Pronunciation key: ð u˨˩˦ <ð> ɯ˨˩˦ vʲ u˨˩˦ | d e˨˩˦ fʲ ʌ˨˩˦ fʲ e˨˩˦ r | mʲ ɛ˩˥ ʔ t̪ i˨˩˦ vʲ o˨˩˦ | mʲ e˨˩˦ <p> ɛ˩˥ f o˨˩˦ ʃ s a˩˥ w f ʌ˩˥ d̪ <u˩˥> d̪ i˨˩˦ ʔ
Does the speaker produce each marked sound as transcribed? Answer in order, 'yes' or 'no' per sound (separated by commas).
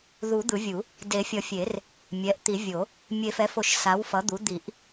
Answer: no, no, yes